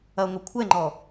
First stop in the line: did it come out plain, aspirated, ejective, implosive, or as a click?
aspirated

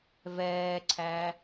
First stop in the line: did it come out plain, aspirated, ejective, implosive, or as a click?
click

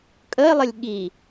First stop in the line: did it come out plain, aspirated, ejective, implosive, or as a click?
ejective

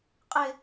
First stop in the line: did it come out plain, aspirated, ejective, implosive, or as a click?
ejective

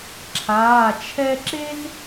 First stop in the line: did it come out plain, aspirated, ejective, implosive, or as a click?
click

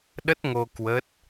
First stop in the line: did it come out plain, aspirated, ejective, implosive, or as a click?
implosive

